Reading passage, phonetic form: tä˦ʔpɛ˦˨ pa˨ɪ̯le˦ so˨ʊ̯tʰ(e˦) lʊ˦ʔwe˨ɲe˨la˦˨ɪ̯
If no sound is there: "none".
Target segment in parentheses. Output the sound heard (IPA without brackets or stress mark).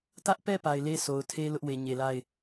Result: e˦